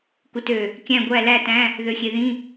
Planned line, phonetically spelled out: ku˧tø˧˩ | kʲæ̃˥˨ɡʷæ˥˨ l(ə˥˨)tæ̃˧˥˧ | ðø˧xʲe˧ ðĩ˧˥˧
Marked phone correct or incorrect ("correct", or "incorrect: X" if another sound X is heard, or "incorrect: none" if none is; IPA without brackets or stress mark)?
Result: incorrect: æ˥˨